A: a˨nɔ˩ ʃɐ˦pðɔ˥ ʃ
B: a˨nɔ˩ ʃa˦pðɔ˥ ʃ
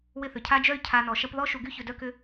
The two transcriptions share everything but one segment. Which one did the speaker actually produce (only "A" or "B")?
A